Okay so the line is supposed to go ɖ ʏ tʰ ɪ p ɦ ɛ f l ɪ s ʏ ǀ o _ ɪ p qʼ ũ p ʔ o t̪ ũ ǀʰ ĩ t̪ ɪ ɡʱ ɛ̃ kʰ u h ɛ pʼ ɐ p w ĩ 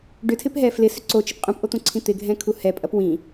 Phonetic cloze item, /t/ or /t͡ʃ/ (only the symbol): t͡ʃ